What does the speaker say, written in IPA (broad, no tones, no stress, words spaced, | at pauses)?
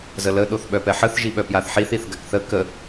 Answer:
zələ ɗoθɓœpɛħəθ ʒiɓœpjaθħiθ iθɡakθə kə